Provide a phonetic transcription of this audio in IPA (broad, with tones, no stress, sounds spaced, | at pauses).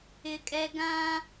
ɪ˦ kʼ ɛ˦ ɡ ã˦